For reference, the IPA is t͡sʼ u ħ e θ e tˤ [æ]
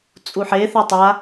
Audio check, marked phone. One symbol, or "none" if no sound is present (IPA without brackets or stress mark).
a